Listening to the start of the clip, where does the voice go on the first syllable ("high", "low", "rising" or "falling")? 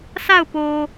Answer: falling